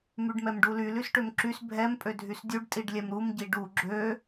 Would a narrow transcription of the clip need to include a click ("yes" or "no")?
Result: yes